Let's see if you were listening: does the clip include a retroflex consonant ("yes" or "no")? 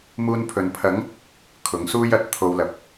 no